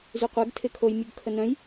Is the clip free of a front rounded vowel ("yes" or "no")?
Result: no